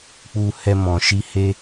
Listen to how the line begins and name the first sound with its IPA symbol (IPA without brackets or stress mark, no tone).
k͡p